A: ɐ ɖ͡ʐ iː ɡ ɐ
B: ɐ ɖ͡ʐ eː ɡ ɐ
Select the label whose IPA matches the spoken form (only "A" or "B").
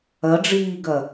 A